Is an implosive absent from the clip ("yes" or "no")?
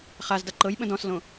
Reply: no